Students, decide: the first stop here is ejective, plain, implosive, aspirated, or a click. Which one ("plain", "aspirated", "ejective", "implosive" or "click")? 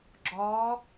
click